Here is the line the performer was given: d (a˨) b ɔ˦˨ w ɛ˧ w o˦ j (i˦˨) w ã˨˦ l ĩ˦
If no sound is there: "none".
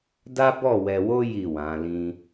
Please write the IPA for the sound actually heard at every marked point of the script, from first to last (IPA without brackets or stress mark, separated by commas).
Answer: a˦, i˦˨